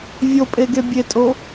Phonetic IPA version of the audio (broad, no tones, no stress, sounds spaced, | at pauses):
vʲ o pʼ e ɡ e bʲ e tʼ o